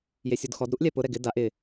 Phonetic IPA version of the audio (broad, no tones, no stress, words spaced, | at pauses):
jesʲudxɔd ɾuʔlʲɛpʊ ɾɛɡɪ daʔ ɪ